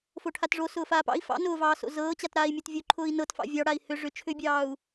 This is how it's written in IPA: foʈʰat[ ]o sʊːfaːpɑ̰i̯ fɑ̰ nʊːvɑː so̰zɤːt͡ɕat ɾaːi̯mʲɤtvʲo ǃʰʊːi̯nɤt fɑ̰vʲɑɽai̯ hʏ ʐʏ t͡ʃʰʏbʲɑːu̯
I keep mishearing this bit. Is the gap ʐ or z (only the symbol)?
ʐ